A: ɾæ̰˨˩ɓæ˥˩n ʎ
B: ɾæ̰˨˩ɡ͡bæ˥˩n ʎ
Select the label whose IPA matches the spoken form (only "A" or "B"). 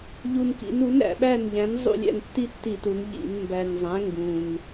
A